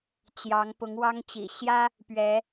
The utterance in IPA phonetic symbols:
t͡ɕ j ɑ˨˦ ŋ p ʊ˨˦ ŋ w ɑ˦ ŋ t͡ɕ ḭ˨˩ ɕ j ä˦ | p ɥ ɛ˨˦

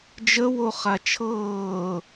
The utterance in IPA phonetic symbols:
d͡ʒ ə w o χ a t͡ʃʰ ɤː

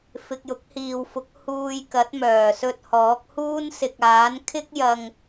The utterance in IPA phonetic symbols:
f ɪ˨ k̚ j ʊ˨˥ k̚ h iː˨ w f ʊ˨˥ k̚ h uː˧ j k ɐ˨˥ t̚ m œː˨˩ s ɵ˧ t̚ h ɔː˨˥ k̚ h uː˥ n s ɪ˨ k̚ aː˨˥ n kʰ ɪ˥ k̚ j ɐ˧ ŋ

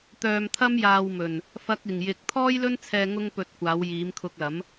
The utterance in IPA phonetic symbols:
t̪ œː˧ m t̪ʰ ɐ˥ m j aː˧ w m ɵ˨ n | f ɐ˥ k̚ ɪ˨ ŋ j ɪ˧ k̚ t̪ʰ ɔː˥ j l ɵ˥ n t͡sʰ ɛː˧ ŋ ʊ˥ ŋ p ɵ˧ t̚ kʷ aː˨˧ w j iː˨˧ m kʰ ʊ˧ k̚ l ɐ˨˥ m

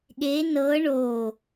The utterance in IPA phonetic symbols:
ɠ e n ɤ ɳ o

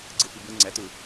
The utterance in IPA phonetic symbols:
ɡ͡ǀ ɯ f i b ɯ ŋ͡ǀ ɛ t ɯ

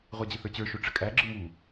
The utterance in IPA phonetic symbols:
ʁʷ a d͡ʑ ɘ θ ə˞ t͡ɕ ə˞ ʃ o ʈ͡ʂ ɘ kʼ æ ɡ͡ǁ ɯ m u

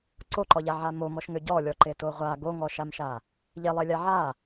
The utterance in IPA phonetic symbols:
ǀ o ǃ ɔ ʎ a ʕ a m o m ɔ ʃ ŋ ø ɟ ɔ lʲ ɔ ǃ e t o ʁʷ a ɡ o ŋ ɔ ʃ a m ʃ a | ʎ e lˠ e lʲ a ʕ a

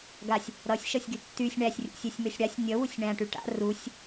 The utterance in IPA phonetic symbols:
ɡ a sʲ | ɾ ʌ sʲ ʃ ʌ sʲ ɡ y tː y sʲ ɳ æ sʲ rʲ ṵ sʲ ɛ sʲ m ø sʲ ɽ a sʲ nʲ ʌ w u sʲ ɳ æ̃ ʈ y ʈ a̰ r u sʲ

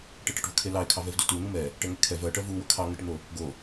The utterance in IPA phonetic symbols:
ʈ ɛ ʈ ə ʈ v ʊ kʰ e l ɑ ɪ̯ kʰ ɑ v ɛ v d u t u n̪ u m ɛ | ʈ ɛ ŋ e kʰ ɛ v ɜ ʈ ɜ v u w ə kʰ ɑ ŋ ə ʈ n̪ o | ɡ o

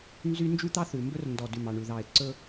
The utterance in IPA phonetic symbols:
n z y˦ n d͡ʒ ʉ˦ t̪ ɑ˦ θ ʉ˨ m b ɵ˦ r n d ɔ˨ d ʉ˨ m ɑ˨ ɳ ʉ˨ ð ɑ˨ ɪ̯ ǀ ɵ˦

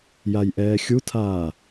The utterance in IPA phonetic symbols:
j a j ʔ ɛː xʲ u tʰ aː

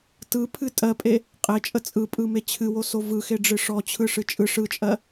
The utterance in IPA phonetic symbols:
t ɯ pʰ ɨ tʼ ɜ pʼ e | qʼ e t͡ʃʼ ə t͡sʼ ɯ pʼ ɯ m e t͡ɕʰ ɨ w o s o v ɯ x e ɖ͡ʐ ɨ ʂ ɔ t͡ɕʰ ɯ ʂ ɨ t͡ʃʼ ɯ ʂ ɯ t͡ʃʼ ɜ

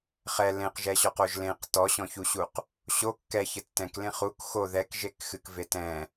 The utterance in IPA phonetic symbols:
χ ɛ l ẽ q ʒ ɛ ɕ ɔ q o ʒ l ẽ q t ɔ ɕ ɔ̃ ç u ɕ u q | ɕ o kː ɛ ç ɘ tː ɛ̃ k l ẽ χ u k x o ð ɛ k ʒ e k x ɨ k v e t ɛ̃

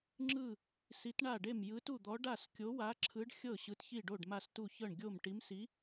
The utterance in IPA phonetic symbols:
ŋ͡ǁ ɯ˥˩ | s i˨˥ t ɳ a˥˩ ɖ e˥˩ m j ɯ˨˥ t u˥˩ d̪ ɔ˨˥ ɖ a˥˩ s kʲ o˨˥ w a˨˥ ǁʰ ɯ˨˥ ɖ xʲ ɤ˥˩ ɕ ɯ˨˥ t ç i˥˩ ɖ o˥˩ ɖ m a˥˩ s t u˥˩ ç ɤ˥˩ ɳ ɡʲ o˥˩ m ʈ i˨˥ m s i˨˥

